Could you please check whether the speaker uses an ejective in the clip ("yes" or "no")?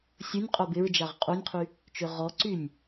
yes